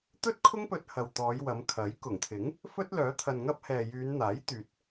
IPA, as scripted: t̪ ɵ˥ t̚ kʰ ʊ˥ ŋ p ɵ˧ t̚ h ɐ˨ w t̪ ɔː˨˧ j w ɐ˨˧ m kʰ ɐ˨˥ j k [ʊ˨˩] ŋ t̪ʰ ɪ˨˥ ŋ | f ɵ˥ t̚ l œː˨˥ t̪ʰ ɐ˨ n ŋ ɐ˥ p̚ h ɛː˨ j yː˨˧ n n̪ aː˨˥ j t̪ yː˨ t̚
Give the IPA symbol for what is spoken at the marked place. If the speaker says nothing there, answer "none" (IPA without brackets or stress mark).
ʊ˨˩